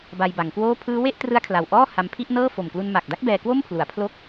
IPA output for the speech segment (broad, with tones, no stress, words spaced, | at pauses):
ba˧jba˩˦ŋkwoː˥˩ pʰɯː˦˥we˥˩ʔtrɯ˦˥a̯ kʰla˨˩wʔɔː˥˩ ha˧mpʰi˥˩ʔnɤː˥˩ fo˨˩m klu˧nma˨˩k̚da˥˩k̚ bɛː˧kwo˥˩mpʰlu˩˦a̯ pʰlo˦˥k̚